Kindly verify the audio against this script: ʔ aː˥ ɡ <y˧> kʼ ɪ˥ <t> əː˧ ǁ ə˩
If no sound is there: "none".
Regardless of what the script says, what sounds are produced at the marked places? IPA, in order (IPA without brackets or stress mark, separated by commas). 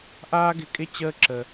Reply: ɪ˧, t͡ɕ